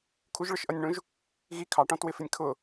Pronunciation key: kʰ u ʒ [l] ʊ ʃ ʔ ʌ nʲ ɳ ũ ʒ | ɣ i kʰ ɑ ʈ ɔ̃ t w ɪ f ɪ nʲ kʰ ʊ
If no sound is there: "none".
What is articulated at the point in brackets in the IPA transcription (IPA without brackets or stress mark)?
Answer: ɭ